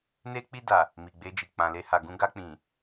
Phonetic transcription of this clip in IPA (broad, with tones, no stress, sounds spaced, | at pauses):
n e˧ k͡p i˧ d a˨ | m i˨ ɡ͡b e˧ d͡ʒ i˨ k͡p ã˨ l e˧ h a˨ ɡ ũ˧ ɡ a˧ k͡p ĩ˨